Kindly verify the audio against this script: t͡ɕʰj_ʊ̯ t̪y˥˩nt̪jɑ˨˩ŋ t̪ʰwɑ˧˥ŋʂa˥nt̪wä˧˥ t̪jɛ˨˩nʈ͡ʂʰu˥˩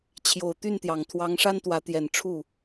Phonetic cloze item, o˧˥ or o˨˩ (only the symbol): o˨˩